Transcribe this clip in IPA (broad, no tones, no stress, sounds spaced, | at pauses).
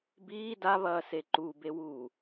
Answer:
b iː d a β ɐː s e ǃ u b e w uː